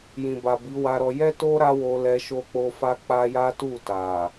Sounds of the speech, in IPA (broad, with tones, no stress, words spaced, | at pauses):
jĩ˨ba˨ bi˨˦wa˧ɾɔ˧ jɛ˦to˦ ɾa˦wo˧lɛ˧ ʃo˧k͡po˧ fa˦ k͡pa˦ ja˦tu˦˨ ta˨